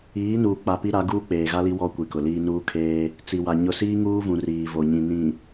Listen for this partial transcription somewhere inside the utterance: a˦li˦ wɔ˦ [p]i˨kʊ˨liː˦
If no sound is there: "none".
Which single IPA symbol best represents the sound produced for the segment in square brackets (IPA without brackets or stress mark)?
kʷ